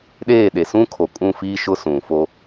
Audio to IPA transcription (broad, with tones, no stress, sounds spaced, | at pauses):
ɗ eː˦˨ ɗ e˨ s ũ˦ kʰ o˨ kʼ ũ˦˨ f iː˦ ʃ ʊ˦ s ũ˨ f o˦